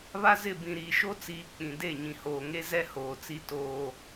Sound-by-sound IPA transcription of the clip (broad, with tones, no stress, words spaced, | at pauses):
βa˦zɪ˦˨ bĩ˨ɾiː˨ʃo˦t͡siː˨ k͡pĩ˨de˦˨ ɲĩ˨hoː˨ŋe˦ zɛ˦hoː˨ t͡si˦toː˦